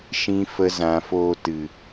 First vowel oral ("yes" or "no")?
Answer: no